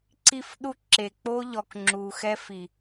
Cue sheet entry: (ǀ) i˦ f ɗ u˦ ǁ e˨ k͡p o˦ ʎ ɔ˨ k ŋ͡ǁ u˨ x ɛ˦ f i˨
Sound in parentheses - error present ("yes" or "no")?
no